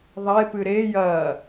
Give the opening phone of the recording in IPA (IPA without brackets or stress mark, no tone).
ðˤ